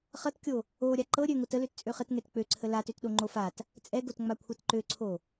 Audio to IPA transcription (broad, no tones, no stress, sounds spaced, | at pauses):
χ ʌ t kʲ o | o ɾʲ a ǃ ɤ ɾʲ ø ŋ o t ə l ø t t͡sʼ ø χ ə t ŋ ɛ t k͡p ø ǀʰ ə l a t ø t ɗ o ŋ͡ǃ o f a t | t͡sʼ ɛ ɡ o t ŋ͡m a kʷʰ ɤ t ǃ ø ǀʰ o